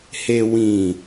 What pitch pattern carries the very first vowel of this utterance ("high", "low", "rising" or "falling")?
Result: low